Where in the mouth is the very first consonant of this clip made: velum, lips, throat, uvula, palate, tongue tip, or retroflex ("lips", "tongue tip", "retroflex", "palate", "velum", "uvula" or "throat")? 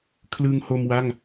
velum